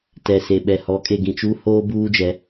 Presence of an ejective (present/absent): present